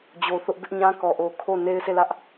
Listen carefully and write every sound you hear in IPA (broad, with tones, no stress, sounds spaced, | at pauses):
d͡ʑ o˨ θ ʊ˦ ʔ b ɪ˦ ʔ ɲ ã˦ k ɔ˨ ʔ o˨ kʰ o˦˨ n e˦ ɪ̯ s e˦˨ l ä˦ ʔ